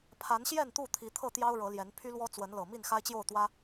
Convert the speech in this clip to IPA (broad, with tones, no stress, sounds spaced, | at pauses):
pʰ a˨˦ n ɕ j ɛ˥˨ n t̪ u˥˨ t̪ʰ i˨˦ t̪ʰ ɤ˥˨ t̪ j ɑ˦ ʊ̯ ɻ ɤ˨˦ l j ɛ˨˦ n pʰ y˦ l w ɔ˦ t͡s w ə˨˦ n l ɤ˨˩ m i˥˨ n x a˦ ɪ̯ t͡ɕ j o˥˨ ʊ̯ t̪ w ä˦